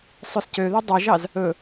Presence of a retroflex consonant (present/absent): absent